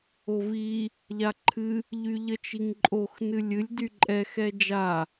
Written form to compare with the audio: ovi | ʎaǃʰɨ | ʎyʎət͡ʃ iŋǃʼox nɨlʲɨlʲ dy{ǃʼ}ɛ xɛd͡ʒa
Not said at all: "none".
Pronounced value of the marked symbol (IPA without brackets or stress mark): ǃʼ